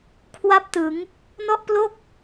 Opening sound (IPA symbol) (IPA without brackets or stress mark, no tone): kʰ